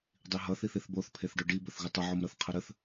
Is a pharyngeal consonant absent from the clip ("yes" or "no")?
no